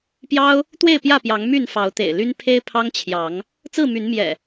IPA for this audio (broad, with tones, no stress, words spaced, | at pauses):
pjɑ˦ʊ̯ | t̪we˥˨ɪ̯ pjä˥˨pjɑ˨˦ŋ my˥˨n fɑ˨˦ʊ̯t̪ḛ˨˩ɪ̯ly˦n pʰe˦ɪ̯pʰɑ˦ŋt͡ɕʰjɑ˨˦ŋ | t͡sɹ̩˥˨my˨˦n mjɛ̰˨˩